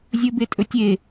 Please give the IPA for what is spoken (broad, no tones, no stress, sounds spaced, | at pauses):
zʲ ɵ b e tʼ ɵ tʲ e